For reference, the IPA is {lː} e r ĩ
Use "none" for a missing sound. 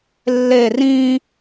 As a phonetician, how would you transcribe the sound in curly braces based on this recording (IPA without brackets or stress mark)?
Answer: lː